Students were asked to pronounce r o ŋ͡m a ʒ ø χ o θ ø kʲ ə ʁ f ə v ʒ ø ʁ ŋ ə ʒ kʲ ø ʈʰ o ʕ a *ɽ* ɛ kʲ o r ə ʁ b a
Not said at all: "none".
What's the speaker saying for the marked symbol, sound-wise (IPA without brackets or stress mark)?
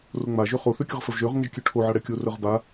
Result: ɽ